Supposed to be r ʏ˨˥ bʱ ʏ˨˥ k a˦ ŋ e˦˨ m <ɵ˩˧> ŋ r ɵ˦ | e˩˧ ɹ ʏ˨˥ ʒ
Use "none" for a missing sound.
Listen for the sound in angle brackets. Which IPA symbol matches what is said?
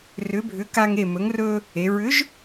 ɵ˨˥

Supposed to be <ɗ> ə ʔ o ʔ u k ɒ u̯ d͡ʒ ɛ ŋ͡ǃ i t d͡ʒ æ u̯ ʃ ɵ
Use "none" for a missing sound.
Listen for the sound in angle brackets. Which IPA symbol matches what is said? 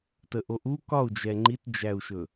t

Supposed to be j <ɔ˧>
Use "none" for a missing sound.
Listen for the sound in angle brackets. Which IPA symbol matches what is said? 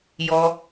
ɔ˧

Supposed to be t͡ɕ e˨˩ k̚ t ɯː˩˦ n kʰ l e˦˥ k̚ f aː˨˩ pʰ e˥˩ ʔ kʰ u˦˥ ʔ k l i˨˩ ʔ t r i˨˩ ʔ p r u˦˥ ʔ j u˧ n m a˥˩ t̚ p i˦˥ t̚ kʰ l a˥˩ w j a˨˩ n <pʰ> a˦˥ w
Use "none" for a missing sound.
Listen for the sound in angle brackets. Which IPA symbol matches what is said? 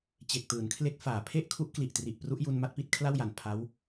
pʰ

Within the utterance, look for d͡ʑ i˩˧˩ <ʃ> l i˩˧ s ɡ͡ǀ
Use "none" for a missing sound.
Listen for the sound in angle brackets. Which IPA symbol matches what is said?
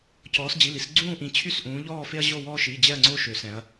none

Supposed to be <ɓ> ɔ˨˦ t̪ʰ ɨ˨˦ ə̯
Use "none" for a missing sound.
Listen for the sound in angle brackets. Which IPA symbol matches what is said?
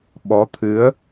ɓ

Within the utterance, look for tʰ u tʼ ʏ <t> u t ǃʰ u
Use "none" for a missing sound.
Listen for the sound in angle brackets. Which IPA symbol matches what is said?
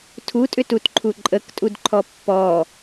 t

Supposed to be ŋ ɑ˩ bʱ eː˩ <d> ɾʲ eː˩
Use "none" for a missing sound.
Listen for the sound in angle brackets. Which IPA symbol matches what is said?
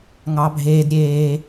d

